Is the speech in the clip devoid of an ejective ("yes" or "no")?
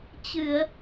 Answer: yes